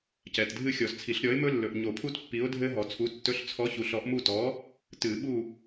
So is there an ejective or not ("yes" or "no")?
no